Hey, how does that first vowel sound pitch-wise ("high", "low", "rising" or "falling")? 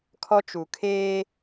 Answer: high